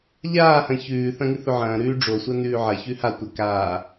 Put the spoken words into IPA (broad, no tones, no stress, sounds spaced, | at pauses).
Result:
ʎ aː h ɐ̃ ç ʉː θ ɐ̃ ŋ ɨ θ ɵ ʕ ɐ̃ː ɾ ʉː ɖ͡ʐ o sʷ a n ʉː ʕ ɐ ç ʉ h a tʷ ɐ k aː